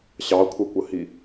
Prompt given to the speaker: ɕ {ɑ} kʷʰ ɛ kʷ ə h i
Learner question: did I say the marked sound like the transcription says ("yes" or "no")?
yes